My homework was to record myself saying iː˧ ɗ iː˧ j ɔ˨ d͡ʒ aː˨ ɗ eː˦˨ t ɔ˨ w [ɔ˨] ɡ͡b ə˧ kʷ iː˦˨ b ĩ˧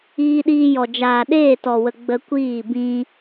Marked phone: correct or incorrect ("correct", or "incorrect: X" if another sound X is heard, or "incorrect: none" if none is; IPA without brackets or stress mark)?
incorrect: ə˨